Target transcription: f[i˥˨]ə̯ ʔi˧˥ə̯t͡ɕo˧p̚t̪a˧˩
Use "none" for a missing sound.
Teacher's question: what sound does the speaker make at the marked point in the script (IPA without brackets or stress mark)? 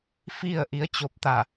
i˥˨